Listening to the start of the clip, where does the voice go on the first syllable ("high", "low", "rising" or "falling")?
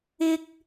high